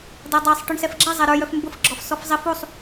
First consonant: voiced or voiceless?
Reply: voiced